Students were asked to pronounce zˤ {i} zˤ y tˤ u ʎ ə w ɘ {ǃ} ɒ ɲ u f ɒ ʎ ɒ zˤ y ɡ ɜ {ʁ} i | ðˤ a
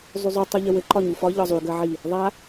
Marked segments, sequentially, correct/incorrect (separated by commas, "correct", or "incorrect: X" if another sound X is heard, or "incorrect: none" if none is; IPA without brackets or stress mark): incorrect: y, correct, incorrect: ʕ